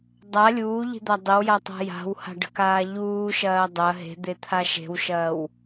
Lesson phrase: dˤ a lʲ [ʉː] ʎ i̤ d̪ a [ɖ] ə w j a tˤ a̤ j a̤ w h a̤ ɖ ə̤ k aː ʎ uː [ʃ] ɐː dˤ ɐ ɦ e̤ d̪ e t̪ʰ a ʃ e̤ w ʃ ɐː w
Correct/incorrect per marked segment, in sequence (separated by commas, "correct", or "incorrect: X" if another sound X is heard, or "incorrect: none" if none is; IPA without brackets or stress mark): incorrect: uː, incorrect: dˤ, correct